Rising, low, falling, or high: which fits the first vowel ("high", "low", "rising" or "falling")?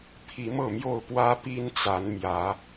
rising